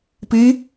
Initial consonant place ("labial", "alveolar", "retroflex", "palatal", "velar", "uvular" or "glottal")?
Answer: labial